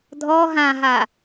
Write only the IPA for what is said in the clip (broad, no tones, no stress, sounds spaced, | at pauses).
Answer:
dʱ ɔ ɦ ã ɦ a